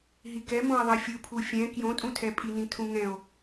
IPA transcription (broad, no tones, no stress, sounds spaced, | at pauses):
ɦ i k ɛ m õ e̯ ðˤ i fʲ ɯ pʰ u fʲ ɛ̃ k j õ tʼ ũ tʰ ɛ pʼ i n ĩ tʰ ũ ŋ ɛ̃ o̯